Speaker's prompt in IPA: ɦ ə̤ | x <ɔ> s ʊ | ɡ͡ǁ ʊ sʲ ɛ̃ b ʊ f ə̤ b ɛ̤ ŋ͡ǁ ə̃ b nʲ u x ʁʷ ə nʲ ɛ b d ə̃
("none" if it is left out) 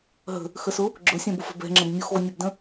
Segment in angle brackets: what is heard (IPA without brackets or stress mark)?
ə